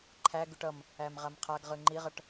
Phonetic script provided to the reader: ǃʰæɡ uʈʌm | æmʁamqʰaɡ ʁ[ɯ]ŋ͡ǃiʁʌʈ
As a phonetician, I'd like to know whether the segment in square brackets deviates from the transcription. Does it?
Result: no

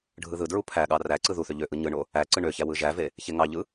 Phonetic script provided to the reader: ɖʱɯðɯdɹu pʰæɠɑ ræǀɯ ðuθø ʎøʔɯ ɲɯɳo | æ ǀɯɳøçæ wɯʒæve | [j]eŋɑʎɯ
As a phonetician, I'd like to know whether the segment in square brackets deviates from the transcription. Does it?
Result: yes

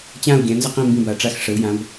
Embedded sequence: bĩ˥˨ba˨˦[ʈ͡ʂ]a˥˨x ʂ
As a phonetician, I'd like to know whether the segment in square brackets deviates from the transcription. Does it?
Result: no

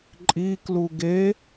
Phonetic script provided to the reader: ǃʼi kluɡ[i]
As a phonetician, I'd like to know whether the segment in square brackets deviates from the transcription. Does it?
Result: yes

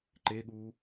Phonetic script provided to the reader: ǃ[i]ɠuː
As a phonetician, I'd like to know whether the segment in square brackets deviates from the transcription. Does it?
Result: yes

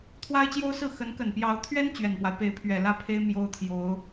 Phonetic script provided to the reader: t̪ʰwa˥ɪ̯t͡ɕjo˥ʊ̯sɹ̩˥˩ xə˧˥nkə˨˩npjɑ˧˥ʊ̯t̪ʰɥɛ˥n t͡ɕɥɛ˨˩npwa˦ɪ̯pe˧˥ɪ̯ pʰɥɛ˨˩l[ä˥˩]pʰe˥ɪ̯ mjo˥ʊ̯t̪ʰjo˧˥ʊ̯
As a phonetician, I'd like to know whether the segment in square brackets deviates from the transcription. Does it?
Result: no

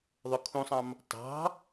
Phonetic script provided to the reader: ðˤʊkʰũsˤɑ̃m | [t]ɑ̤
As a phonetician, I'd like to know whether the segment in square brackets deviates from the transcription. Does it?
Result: no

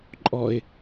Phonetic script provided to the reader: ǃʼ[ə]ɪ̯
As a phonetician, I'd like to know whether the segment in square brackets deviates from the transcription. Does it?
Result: yes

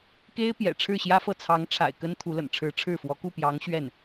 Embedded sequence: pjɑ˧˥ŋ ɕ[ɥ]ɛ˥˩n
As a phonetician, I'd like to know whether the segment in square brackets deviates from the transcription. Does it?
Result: no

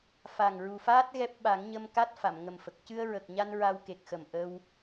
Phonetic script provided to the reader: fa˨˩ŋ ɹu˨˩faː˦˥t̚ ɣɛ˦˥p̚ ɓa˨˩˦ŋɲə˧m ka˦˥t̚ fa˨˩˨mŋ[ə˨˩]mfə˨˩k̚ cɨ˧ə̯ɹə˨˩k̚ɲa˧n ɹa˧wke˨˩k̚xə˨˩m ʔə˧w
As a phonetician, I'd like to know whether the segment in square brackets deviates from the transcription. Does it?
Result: no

